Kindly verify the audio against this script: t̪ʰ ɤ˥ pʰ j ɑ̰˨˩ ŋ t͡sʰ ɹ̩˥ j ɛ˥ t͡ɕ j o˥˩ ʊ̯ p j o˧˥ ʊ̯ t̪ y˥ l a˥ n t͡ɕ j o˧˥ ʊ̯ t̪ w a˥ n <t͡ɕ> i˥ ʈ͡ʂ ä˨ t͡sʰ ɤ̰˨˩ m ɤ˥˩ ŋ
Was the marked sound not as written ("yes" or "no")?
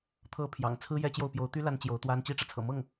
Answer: no